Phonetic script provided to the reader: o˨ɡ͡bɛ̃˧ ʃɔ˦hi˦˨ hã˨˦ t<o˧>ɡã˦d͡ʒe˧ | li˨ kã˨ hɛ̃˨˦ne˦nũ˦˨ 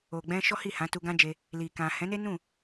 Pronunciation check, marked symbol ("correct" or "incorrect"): incorrect